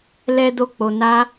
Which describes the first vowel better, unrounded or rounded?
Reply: unrounded